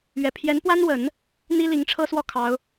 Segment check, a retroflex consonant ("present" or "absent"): present